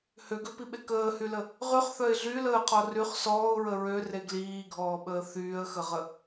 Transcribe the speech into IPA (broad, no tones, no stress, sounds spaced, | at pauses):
h ø ɡ ø p i ɓ e k əː h y l ə | ʁ y χ θ œ ɪ̯ ɮ y l əː qʰ ɔ r y χ s ɔː ʊ̯ ɹ ə ɹ ø r e ɡ l iː ɡʱ ɔː ɓ əː θ yː ə̯ x ə ʁ ə